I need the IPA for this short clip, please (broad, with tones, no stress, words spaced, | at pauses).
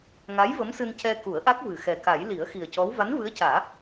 ŋa˧˥j və˧˥msɨ˧ncɛ˧ ku˨˩˦ə̯ʔa˦˥k̚vɨ˨˩ xɛ˨˩ka˨˩˦j li˨˩˦ə̯xi˨˩ə̯cɔ˧˥w va˧˥nvɨ˧˥ə̯caː˨˩˦